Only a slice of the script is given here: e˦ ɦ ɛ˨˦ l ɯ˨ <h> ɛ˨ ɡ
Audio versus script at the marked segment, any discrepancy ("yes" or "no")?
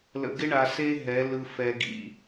yes